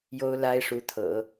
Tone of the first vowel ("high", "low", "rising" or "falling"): high